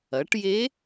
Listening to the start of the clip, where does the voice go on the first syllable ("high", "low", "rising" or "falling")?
rising